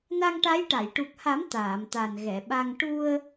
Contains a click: no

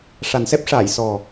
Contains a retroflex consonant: yes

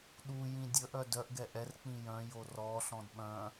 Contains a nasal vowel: yes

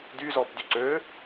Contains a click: yes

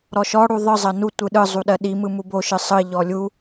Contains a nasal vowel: no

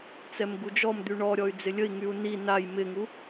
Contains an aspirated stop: no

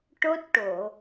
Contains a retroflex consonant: yes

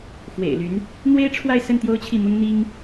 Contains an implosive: no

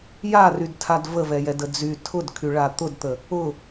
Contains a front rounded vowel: yes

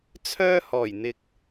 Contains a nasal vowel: no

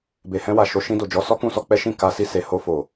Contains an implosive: no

